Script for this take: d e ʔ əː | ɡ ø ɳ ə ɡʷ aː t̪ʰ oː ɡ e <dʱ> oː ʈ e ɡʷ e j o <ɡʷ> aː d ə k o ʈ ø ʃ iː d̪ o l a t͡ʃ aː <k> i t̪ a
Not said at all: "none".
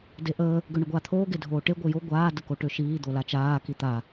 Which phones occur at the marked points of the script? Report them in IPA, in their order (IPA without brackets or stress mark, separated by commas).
dʱ, ɡʷ, k